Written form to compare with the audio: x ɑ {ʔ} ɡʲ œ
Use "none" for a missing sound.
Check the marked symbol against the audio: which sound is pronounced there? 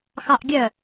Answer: ʔ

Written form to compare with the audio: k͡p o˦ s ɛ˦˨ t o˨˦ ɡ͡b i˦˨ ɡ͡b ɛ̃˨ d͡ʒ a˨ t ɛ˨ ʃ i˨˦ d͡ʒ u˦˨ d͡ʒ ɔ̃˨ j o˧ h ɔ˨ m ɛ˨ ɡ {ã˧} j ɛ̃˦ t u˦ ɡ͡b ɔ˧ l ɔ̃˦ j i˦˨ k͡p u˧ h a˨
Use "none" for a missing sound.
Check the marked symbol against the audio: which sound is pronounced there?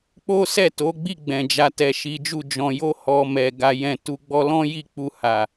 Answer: a˧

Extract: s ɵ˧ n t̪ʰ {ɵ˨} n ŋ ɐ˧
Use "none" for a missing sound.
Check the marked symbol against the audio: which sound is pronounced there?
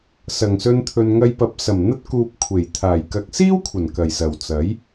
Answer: ɵ˨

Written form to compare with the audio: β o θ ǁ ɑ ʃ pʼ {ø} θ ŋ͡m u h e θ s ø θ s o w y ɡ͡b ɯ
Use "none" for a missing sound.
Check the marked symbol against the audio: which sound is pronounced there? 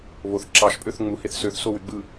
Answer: ø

